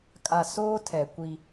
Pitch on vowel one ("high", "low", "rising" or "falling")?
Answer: low